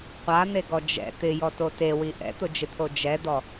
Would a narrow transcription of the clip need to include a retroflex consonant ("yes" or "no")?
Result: no